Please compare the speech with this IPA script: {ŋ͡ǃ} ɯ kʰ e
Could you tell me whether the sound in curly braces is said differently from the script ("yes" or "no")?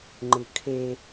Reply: no